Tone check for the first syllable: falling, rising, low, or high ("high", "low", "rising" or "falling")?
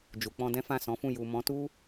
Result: low